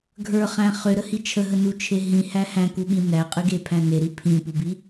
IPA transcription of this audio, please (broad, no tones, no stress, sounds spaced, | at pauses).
ɡʱ ə˞ χ æ̃ χ ʏ ɾ ə h i t͡ʃʰ ə ɦ ə n u t͡ʃʰ e ɦ ĩ h æ h æ̃ k u ɓ ĩ n æ qʼ ɨ ɡ e pʰ æ̃ n e ɾ i pʰ ĩ p u b i